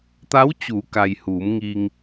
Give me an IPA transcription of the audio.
t̪a˧˥wt͡ɕuː˩˧ka˩j huː˩˧mŋi˧ŋ

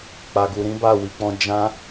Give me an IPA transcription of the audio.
k͡pa˨ɡu˨ɾĩ˨˦ba˦˨ wi˨˦k͡pɔ̃˦ d͡ʒã˦

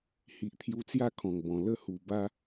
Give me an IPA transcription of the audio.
hi˨ʔt̪ʰju˧t͡sja˥˧ kʰɔ̃˨˩ŋbɔ̃˨˩ lə˥˧hu˨˩ba˦

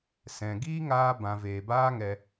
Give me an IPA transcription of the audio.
sɛ̃˨ ɡiː˦ŋaː˧ bã˨ veː˨baː˦ŋɛ˧

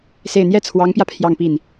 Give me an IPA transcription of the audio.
se˥˩ɪ̯ n̪jɛ˥t͡sʰwɑ˧˥ŋpjä˧ pʰjɑ˥˧ŋpi˥˩n

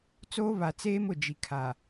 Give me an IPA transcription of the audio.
t͡soː˦βa˨ t͡seː˦mʊ˨d͡ʒi˨ kʰa˨

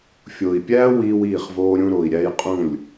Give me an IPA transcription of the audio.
fʲo˨i̯ pʲæː˦ wiː˦wiː˦˨χvoː˦ ɾʲũ˦ ɾo˨i̯ɾʲæ˦j qʼũ˦˨lʲ

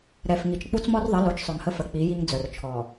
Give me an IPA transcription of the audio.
ɾɛ˨fŋi˨t͡ʃ k͡pu˦t͡smɔ˦rðˤə˨˦ lo˨˦t͡ʃsˤœ˨ŋhə˦fə˨ k͡pi˨˦ji˦ŋ d͡zœ˨rt͡ʃʰɔ˨

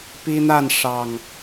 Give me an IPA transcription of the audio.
pi˦n̪a˥˨nʂɑ˨˩ŋ

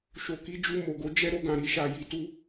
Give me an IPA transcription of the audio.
ʃo˧ki˦d͡ʒu˧ mo˨ɡo˨˦ d͡ʒɛ˦ ɾo˧ɡã˨ ɾi˧ʃa˨ ji˨tu˧

